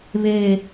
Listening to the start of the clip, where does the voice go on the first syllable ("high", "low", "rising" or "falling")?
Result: falling